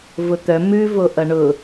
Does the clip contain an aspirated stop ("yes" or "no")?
no